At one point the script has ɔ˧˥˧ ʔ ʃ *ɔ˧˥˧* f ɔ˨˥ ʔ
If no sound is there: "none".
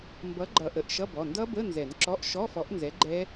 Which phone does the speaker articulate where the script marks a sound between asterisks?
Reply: ɔ˧˥˧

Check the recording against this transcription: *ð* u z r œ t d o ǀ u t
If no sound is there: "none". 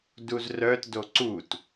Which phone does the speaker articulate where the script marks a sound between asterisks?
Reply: d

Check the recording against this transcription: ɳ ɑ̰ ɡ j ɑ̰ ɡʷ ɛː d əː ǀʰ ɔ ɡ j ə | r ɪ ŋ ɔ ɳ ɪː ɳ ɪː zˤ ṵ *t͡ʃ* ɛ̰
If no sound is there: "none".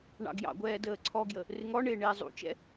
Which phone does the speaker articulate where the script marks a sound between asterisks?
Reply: t͡ʃ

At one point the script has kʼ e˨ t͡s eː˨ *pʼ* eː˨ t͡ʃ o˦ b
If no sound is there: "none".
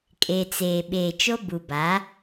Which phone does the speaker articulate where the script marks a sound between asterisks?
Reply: ɓ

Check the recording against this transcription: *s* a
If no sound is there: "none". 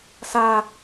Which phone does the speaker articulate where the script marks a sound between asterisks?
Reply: s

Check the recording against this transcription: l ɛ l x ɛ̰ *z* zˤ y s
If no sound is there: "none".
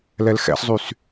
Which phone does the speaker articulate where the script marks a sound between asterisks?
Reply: s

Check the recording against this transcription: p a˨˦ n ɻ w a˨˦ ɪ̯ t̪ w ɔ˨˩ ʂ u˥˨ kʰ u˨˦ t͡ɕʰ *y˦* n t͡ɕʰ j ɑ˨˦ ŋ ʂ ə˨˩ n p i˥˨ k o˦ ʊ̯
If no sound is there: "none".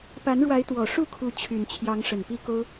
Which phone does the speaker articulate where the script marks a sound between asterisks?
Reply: y˨˩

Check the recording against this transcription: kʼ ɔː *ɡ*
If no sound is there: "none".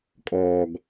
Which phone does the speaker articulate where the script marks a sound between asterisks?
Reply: ɡ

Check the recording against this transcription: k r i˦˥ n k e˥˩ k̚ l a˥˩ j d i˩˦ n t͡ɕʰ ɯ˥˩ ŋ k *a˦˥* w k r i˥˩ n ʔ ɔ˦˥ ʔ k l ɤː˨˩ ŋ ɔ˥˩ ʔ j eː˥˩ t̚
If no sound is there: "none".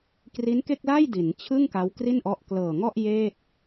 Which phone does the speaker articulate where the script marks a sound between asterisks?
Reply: a˦˥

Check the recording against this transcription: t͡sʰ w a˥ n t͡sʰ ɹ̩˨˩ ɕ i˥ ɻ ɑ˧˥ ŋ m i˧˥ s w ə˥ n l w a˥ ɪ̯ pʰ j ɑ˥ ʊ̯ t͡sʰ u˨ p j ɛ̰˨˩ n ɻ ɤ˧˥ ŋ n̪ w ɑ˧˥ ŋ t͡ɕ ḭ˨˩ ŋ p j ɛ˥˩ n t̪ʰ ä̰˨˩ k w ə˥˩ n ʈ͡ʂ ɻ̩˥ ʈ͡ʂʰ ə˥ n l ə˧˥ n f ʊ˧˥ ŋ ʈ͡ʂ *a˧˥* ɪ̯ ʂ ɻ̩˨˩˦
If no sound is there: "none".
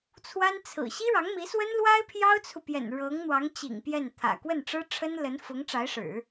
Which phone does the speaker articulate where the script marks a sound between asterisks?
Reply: a˧˥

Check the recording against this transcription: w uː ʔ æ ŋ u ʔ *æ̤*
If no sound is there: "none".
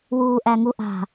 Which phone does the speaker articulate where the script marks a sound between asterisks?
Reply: a̤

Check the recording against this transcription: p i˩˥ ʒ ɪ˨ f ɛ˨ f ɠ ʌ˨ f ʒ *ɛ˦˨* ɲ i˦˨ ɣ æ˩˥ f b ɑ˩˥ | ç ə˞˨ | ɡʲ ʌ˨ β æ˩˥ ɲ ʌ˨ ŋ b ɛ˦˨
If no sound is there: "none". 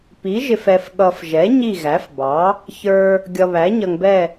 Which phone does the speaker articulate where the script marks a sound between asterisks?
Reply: ɛ˩˥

